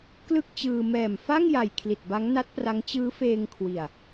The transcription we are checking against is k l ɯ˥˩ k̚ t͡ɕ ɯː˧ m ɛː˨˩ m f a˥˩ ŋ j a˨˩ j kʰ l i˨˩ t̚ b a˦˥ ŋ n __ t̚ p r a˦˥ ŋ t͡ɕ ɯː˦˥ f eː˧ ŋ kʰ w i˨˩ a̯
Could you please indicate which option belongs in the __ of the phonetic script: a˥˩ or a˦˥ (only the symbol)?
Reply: a˦˥